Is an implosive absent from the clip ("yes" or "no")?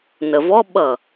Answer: no